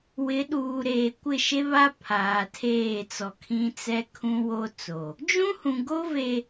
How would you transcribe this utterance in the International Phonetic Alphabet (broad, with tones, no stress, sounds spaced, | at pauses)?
w ɪ˨˦ ɗ uː˨ ɾ eː˨ kʷ ɪ˦˨ ʃ e˦ β a˦ pʰ aː˨ tʰ eː˦˨ t͡s ɔ˨ kʰ ĩ˦ t͡s ɛ˦ kʰ ũ˦ w o˦ t͡s o˨ | d͡ʒ ũ˦ h ũ˨ ɡ o˦ v e˨